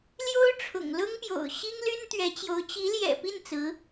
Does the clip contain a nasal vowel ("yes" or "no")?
no